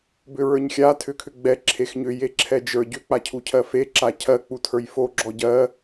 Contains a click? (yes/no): yes